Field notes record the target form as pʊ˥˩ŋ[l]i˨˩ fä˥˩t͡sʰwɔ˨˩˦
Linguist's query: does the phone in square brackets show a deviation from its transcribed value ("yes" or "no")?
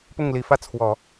no